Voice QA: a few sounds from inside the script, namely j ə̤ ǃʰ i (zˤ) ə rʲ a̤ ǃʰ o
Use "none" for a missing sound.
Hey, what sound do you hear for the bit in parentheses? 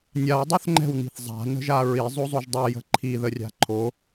ð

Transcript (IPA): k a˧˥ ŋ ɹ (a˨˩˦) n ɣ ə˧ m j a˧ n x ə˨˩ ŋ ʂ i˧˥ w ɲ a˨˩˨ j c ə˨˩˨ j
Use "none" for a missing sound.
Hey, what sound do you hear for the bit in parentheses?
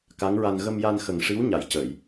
a˧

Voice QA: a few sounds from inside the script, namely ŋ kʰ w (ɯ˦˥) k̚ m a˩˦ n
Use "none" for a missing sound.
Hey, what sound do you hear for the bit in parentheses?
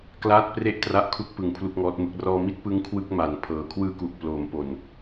ɯ˥˩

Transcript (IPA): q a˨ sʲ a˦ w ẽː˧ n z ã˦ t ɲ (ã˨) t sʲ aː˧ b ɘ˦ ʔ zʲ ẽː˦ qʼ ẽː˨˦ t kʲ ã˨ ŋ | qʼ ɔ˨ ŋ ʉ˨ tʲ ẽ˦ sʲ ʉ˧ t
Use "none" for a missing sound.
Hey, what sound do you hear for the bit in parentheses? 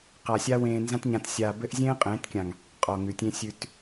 ã˧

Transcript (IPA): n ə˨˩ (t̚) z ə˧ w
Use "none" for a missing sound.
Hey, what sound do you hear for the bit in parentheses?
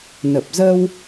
p̚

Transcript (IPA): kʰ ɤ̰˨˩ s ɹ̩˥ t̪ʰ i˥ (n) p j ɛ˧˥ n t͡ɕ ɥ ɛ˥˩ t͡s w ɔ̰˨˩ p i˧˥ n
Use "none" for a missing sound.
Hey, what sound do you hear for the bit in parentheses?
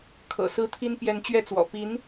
n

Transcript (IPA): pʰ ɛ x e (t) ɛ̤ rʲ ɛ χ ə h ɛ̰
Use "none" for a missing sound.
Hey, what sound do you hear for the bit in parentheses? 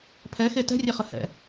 t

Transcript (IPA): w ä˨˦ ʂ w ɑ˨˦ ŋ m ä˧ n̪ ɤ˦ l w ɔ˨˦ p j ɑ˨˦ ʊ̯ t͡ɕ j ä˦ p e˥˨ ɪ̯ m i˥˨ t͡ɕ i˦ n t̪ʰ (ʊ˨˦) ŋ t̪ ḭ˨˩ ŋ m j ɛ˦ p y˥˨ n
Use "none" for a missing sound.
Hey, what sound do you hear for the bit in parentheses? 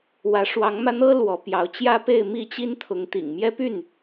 ʊ˨˦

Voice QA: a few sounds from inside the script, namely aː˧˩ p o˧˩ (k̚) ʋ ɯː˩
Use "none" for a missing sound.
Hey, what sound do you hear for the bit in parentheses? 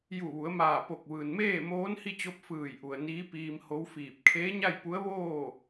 k̚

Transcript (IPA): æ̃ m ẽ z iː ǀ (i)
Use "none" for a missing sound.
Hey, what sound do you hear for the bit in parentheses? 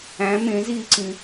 ĩ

